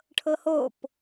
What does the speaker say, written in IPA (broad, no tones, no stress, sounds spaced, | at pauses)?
ʈʰ ɤ h o p